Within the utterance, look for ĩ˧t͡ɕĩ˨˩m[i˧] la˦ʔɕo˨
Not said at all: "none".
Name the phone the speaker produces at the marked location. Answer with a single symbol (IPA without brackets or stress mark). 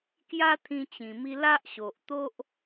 i˧